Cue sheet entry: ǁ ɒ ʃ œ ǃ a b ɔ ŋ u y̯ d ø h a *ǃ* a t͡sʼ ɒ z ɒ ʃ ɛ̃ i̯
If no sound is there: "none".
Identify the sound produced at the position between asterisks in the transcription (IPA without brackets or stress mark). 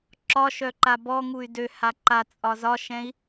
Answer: ǃ